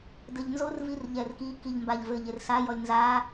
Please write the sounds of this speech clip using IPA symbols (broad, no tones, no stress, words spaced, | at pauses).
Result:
dɘʎnzor virʎɛrki kiʎmbaʎvɘʎ ersa jɔlʲnza